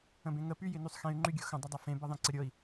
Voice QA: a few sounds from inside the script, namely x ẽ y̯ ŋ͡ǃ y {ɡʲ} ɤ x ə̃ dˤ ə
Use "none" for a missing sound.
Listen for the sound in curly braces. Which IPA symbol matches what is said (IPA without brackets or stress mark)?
ɡʲ